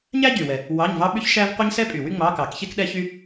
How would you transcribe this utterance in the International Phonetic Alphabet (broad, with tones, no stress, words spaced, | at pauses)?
ɲæ˥ ɟy˨˩wɛ˨˩ | wɑ˧˥˧ɲvɑ˥ ɓy˥çʃæ˥v qʷe˥ɲsɛ˥pʼy˨˩wy˥ ŋ͡mɑ˧˥˧kɑ˧˩˧kçe˥k ɗɛ˥çy˥